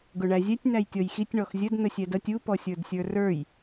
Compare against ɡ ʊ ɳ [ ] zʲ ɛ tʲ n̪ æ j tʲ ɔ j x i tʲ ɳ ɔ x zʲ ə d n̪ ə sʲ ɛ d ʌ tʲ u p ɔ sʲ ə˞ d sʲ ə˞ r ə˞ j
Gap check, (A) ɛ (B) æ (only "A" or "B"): B